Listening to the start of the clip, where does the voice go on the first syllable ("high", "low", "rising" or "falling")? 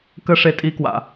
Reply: high